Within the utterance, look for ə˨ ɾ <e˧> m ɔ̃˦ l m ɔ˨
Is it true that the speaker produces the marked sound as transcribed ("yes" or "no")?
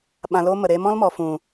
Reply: yes